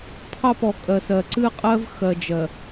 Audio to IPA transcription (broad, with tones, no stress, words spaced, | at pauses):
pʰɑ˦pɔ˨ kʼɜ˨sɜ˨ ǀɨ˦qʼɜ˦v xɜ˨d͡ʒɜ˨